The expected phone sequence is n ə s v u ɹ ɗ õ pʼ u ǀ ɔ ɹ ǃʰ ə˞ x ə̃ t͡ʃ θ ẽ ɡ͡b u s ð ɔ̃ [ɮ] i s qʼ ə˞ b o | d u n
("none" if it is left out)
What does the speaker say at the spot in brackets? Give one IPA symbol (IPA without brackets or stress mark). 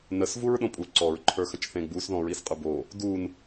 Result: ɹ